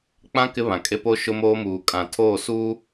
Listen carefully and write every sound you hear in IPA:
k͡p ã˦ k ɪ˦ β ã˨ kʼ e˦ p o˦ ʃ ʊ˦ m oː˦ m uː˨ kʼ ã˨ tʰ oː˦˨ s uː˦

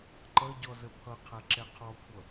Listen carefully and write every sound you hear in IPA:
ǃ ʌ ɟ ɔ z ə pʰ ʌ qʰ ɛ ǁ ɛ qʰ ɔ kʷʰ ʌ

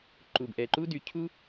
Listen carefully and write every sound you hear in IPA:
ǃ u˩ b ʔ ɛ˩ ǃ u˥ d y˩ cʰ u˥

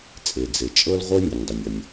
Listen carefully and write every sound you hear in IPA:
t͡sʼ e˩ d͡z e˩ t͡ʃʼ ɤ˥ l ʁʷ ɤ˥ nʲ ə˩ nʲ dˤ ə˩ nʲ ɒ˩ nʲ

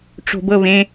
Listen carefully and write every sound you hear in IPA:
ʈ͡ʂ o̤ b ɤ β ẽ

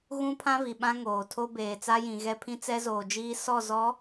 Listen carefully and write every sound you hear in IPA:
ɣ ũ˦ pʰ ã˦ v i˨ ɓ ã˦ ŋ oː˨ tʰ o˦ b eː˨ t͡s a˦ j ĩ˨ ɣ ɛ˦ pʰ ĩ˦ t͡s ɛ˦ z oː˨ d͡ʒ iː˦ s ɔ˦˨ z ɔ˨˦

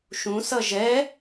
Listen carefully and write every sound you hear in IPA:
ʃ ũ s ʌ ʒ ɛ

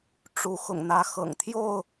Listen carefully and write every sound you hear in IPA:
ʈ͡ʂ u˨˦ x ʊ̰˨˩ ŋ n̪ ä˨˦ x ɤ̰˨˩ ŋ t̪ʰ j o˥˨ ʊ̯

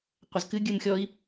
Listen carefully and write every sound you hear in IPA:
qʷ ɐ z k ɨ ɡʲ ɨ m xʲ ɔ i̯

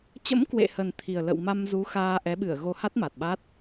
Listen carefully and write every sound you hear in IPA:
t͡ɕ ə̰˧˥ m k w ḛ˧˨ h ə˨˩ n t̪ʰ i˨˩ ə̯ l ə̰˧˨ w m a˧ m z u˨˦ x aː˧ ʔ ɛ˨˦ ɓ ɨ˧˩ ə̯ ɣ o˧ h a˦˥ t̚ m a˨˩ t̚ ɓ a˦˥ t̚

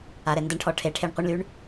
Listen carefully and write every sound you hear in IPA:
a ɾ ɛ n d ə ɳ ʈʰ ɔ ʈʰ e ʈʰ e ɳ qʷ i ɳ l y ɳ

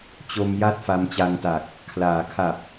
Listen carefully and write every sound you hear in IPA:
t͡ɕ o˧ m j a˥˩ t̚ f a˧ m t͡ɕ a˧ ŋ t a˨˩ k̚ | kʰ l aː˩˦ kʰ a˨˩ p̚

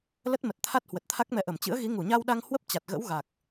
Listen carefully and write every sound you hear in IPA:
l ə˦˥ t̚ m ə˨˩ t̚ t̪ʰ a˦˥ t̚ h w ə˨˩ t̚ t̪ʰ a˦˥ k̚ m ɛ˧ ʔ ə˧˩ m t͡ɕ ɨ̰˧˥ ə̯ ɣ i˨˦ ŋ u˧˩ ɲ a˧ w ɗ a˧ ŋ h w ə˦˥ p̚ t͡ɕ a˨˩ t̚ ɣ ə̰˧˥ w ɣ a˨˩ k̚

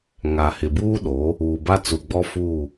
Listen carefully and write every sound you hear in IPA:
ŋ a˨ h ɪ˨ b uː˦ ɗ oː˨˦ | uː˨ b a˦ t͡s u˨ ɡ͡b ɔ˦ f uː˦˨

